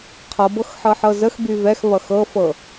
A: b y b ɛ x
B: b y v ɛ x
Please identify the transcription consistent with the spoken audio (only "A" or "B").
B